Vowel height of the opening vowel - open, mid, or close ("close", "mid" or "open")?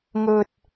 mid